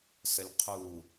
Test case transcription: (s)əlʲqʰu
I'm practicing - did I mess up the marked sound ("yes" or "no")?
no